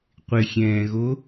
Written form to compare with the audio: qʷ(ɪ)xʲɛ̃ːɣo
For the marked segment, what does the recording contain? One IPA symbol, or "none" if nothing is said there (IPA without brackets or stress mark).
ɪ